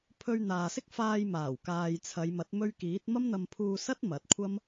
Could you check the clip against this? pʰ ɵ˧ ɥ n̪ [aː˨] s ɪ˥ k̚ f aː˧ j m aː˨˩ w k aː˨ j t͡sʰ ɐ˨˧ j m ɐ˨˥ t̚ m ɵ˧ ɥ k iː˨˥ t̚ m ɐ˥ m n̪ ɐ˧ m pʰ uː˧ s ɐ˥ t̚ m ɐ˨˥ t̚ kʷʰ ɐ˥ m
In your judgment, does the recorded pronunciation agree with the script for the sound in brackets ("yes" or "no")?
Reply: yes